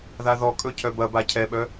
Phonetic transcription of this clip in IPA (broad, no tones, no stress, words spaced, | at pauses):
ðaðɔkʼɵ cʰœbɐba cʰɛɓœ